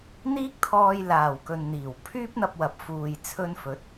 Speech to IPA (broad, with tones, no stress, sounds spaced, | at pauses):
n̪ iː˥ k̚ t̪ʰ ɔː˧ j l aː˨˩ w k ɵ˨ n n̪ iː˨˩ w pʰ yː˥ p̚ n̪ ɐ˧ p̚ w ɐ˨˥ p̚ f uː˨ j t͡sʰ ɵ˧ n f ɵ˨˥ t̚